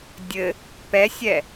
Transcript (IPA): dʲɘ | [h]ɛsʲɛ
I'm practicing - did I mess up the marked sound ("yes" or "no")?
yes